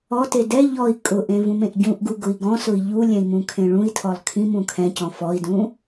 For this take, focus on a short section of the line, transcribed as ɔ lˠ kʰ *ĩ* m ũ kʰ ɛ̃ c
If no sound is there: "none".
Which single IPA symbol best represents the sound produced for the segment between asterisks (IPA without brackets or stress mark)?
ĩ